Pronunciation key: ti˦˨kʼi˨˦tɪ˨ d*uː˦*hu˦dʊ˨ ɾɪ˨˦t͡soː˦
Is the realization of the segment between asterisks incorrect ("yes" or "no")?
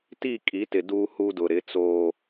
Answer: no